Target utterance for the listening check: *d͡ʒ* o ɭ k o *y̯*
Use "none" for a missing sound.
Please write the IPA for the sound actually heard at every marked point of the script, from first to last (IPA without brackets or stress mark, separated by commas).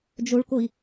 d͡ʒ, i̯